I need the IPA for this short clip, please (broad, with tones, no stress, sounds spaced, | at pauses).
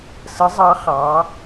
s ə˩˧ zˤ ɑ˩˧ χ ɑ˩˧